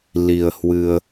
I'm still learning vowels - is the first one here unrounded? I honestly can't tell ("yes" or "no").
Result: yes